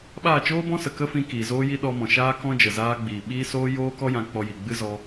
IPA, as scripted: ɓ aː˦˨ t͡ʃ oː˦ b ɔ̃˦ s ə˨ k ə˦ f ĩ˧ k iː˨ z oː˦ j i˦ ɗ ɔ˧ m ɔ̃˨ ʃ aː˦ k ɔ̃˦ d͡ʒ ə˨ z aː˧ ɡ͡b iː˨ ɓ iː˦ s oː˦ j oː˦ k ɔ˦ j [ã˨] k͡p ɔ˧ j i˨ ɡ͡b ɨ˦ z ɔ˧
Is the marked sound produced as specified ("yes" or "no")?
no